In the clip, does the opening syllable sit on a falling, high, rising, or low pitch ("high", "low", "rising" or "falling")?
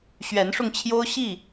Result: rising